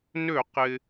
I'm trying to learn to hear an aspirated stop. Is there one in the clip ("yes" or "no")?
no